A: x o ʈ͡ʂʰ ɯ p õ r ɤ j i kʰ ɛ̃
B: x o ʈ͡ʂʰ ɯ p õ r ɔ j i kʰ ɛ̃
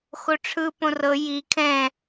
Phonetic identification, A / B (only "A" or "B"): A